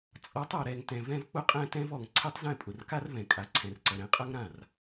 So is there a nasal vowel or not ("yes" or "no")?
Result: yes